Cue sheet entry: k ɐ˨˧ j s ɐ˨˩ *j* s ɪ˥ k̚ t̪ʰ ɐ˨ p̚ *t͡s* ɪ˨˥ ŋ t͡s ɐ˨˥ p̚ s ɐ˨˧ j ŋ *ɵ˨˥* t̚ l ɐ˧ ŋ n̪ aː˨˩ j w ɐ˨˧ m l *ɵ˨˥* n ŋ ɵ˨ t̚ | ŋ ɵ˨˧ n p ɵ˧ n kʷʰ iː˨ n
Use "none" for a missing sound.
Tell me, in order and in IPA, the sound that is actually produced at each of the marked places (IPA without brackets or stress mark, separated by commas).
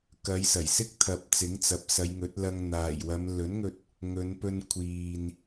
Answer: j, t͡s, ɵ˨˥, ɵ˨˥